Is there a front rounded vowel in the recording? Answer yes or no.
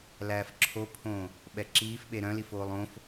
yes